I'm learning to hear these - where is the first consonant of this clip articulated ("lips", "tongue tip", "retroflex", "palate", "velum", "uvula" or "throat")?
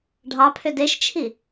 retroflex